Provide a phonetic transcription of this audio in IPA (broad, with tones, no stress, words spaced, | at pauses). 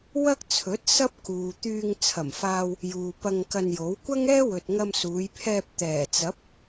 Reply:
wɐ˥k̚t͡sʰɵ˨˥t̚ sɐ˥p̚kuː˨ t̪yː˧ŋt͡sʰɐ˨˩mfaː˧w | juː˨pɐ˧ŋkɐ˧njo˨˥w kʷɐ˥ŋɛː˥wɵ˨t̚ ŋɐ˧msuː˨˧jpʰɛː˧p̚ t̪ɛː˨˩t͡sɐ˨˥p̚